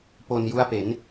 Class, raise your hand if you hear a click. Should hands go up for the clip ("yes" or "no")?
no